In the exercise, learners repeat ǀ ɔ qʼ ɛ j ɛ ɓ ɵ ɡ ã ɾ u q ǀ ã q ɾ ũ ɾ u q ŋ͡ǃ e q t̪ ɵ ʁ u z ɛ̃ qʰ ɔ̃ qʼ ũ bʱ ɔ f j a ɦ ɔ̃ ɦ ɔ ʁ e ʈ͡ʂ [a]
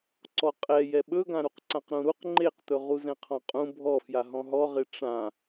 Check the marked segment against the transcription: incorrect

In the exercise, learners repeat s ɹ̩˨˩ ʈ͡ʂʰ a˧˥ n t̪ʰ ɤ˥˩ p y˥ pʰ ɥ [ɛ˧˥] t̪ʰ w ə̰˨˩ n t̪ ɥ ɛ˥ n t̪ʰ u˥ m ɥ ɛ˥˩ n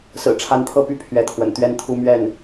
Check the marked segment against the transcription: correct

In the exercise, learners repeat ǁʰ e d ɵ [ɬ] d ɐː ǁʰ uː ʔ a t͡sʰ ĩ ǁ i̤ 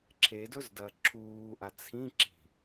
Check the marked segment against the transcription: incorrect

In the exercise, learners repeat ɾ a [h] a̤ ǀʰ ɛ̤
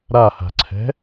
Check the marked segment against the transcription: correct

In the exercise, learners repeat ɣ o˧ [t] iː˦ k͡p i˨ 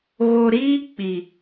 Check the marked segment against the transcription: incorrect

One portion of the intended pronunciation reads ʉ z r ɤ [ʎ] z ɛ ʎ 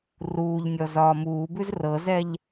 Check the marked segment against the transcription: incorrect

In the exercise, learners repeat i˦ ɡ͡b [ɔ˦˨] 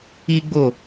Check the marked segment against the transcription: incorrect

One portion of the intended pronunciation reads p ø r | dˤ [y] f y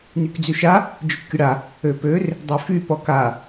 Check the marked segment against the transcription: incorrect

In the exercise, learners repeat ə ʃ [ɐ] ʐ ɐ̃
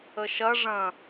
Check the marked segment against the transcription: correct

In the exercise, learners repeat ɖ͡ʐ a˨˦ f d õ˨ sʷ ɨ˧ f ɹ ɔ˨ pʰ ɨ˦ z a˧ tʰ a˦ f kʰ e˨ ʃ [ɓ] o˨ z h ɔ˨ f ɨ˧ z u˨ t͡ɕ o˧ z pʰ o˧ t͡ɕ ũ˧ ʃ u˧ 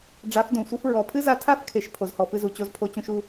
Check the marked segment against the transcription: incorrect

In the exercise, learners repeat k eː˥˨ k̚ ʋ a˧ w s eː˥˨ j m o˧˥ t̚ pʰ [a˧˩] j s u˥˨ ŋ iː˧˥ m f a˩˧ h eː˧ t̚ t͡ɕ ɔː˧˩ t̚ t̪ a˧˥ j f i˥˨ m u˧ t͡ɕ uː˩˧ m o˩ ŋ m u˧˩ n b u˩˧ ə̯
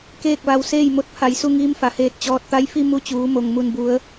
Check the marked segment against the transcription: correct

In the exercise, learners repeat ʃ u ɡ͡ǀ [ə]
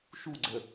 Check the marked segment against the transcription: correct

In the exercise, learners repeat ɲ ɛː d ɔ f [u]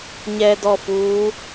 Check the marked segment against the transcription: incorrect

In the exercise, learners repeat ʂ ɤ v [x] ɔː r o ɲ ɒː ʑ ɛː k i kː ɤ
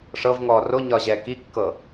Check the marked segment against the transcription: incorrect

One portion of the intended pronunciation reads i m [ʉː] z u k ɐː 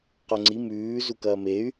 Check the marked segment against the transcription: correct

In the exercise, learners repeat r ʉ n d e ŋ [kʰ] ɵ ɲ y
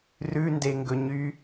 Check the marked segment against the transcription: incorrect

